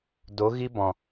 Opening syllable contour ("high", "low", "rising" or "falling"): rising